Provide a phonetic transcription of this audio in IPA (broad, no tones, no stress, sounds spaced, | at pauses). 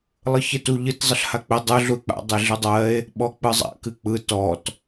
lˠ ɯ ç e t u ʎ ɨ t zˤ ə ɬ h a k͡p ɪ dˤ ɯ ɮ u e̯ k͡p a̰ dˤ e ɮ ɯ dˤ ɜ e̯ | ɓ ɔ k͡p ɯ zˤ a̰ k ɨ k͡p ɯ t ɔ t